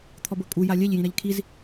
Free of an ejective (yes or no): no